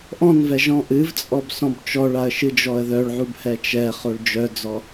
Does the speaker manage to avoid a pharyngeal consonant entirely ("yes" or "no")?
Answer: no